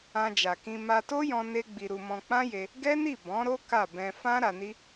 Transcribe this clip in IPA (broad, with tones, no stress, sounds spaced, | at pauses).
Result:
ã˧ d͡ʒ a˨ k ĩ˧ m a˧ t o˦ j ɔ̃˧ n e˦ ɡ͡b i˧ ɾ u˧ m ɔ̃˧ k͡p ã˦ j e˧ | ɡ ɛ˦ n i˦˨ b ɔ̃˨˦ ɾ o˦ k a˦˨ b ɛ̃˧ f ã˦ ɾ a˧ n i˦